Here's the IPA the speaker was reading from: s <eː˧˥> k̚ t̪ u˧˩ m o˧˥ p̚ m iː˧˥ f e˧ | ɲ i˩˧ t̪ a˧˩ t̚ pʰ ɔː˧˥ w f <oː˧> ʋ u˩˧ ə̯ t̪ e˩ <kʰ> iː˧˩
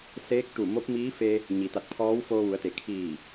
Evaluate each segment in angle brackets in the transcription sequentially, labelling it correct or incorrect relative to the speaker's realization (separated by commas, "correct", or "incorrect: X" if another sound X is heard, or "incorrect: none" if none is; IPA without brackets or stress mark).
correct, correct, correct